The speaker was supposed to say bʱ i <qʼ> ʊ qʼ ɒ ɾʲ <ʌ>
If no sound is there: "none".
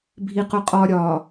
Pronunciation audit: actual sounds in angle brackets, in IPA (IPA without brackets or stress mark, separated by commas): q, ɒ